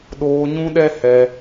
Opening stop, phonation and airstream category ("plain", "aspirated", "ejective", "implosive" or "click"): implosive